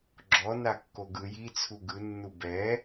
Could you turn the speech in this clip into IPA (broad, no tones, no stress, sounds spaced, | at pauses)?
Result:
ɡ͡ǁ ɔ n a kː o ɡ ɯ j i t͡sʰ u ɡ ɯ nː u b ɛ